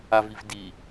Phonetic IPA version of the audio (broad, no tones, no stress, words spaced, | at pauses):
aviv di